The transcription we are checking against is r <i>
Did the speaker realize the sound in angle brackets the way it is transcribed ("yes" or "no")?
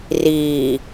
no